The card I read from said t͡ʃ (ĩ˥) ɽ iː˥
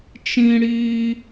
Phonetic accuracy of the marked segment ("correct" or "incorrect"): correct